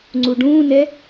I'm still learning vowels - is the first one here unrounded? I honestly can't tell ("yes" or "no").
no